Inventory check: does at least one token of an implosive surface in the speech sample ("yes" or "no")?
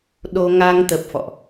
yes